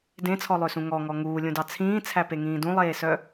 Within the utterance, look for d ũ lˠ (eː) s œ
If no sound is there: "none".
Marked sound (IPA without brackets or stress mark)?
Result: eː